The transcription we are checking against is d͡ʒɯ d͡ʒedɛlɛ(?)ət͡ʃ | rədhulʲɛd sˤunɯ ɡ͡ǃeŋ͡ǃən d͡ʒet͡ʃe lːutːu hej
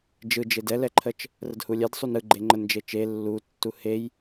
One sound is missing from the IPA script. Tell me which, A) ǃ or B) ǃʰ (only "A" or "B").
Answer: B